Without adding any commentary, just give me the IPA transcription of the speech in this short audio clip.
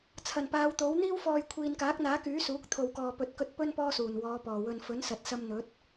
t͡sʰ ɐ˨˩ n p aː˨˧ w t̪ o˨˥ w n̪ iː˥ w f ɔː˨ j kʷʰ iː˨ n k aː˨˥ k̚ n̪ aː˨˥ k yː˨˥ s uː˨˥ k̚ t̪ʰ o˨ w k ɔː˨ p ɵ˨˥ t̚ k ɵ˧ t̚ p ɵ˥ n p ɔː˥ s uː˨˩ n w ɔː˨˧ p ɔː˨˩ w ɵ˨ n f ɵ˨˥ n s ɐ˨ t̚ s ɐ˧ m n̪ ɵ˨˥ t̚

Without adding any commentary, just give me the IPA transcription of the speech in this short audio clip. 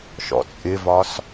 ʃ ɔ̰ t͡sʼ ɪ v ɒ s

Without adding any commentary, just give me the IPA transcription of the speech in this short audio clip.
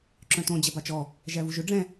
ǁ œ̃ t õ d͡ʑ ɛ b ɑ t͡ʃ ɔ | ʒ æ v u ʒ ɵ ɖ͡ʐ ɛ̃

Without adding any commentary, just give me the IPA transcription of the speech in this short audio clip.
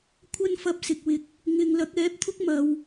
kʷʰ ɐ˥ n f ɐ˧ p̚ s ɪ˨ k̚ w ɪ˨ k̚ | ŋ ɪ˨ ŋ l ɐ˨˥ k̚ ɛː˨˥ p̚ t̪ʰ ʊ˥ k̚ m ɐ˨˧ w

